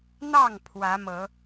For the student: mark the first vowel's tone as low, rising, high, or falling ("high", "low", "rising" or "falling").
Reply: falling